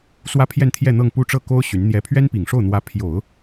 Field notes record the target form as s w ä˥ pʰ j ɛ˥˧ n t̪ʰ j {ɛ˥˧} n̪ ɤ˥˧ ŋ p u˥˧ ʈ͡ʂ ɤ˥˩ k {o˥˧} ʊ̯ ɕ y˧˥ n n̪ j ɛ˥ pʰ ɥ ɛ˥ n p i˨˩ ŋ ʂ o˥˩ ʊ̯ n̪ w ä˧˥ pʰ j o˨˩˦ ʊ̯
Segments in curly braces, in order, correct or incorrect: correct, incorrect

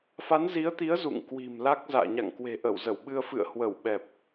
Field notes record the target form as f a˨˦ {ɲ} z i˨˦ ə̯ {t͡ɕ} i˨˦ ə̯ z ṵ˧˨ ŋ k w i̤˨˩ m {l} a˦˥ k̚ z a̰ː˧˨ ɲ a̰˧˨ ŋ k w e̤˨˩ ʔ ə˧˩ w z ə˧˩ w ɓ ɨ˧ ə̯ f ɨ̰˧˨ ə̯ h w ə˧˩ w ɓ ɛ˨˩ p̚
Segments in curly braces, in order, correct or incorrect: incorrect, incorrect, correct

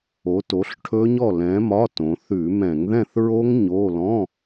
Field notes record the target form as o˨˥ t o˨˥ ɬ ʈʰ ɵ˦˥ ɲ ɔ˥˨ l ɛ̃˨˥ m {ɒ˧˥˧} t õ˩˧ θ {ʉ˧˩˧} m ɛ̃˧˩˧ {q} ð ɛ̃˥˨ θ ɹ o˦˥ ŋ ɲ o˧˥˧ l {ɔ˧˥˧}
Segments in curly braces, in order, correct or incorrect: correct, correct, incorrect, incorrect

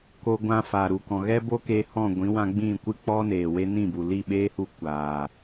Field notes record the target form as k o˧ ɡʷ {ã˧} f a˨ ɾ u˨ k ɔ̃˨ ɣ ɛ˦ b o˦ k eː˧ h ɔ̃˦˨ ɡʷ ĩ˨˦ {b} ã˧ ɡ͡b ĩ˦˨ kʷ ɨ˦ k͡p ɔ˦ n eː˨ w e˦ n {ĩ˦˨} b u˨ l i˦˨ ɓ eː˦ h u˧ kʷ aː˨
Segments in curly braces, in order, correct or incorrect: correct, incorrect, correct

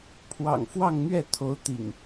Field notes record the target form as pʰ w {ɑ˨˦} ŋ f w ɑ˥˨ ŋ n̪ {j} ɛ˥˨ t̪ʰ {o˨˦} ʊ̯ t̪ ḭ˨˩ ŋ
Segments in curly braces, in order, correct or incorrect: incorrect, incorrect, correct

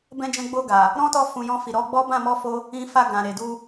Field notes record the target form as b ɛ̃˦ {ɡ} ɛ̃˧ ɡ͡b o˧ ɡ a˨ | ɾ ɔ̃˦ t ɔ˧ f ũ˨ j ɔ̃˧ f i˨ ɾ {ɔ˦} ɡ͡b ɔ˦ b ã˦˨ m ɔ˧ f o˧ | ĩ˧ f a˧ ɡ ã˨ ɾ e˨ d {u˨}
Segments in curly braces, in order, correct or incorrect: incorrect, incorrect, incorrect

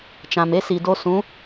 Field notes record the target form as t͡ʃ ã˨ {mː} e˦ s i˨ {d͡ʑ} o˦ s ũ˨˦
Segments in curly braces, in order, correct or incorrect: incorrect, incorrect

